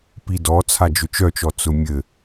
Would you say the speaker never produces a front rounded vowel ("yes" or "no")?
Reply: no